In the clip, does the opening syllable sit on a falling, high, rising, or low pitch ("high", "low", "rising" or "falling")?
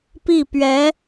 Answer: falling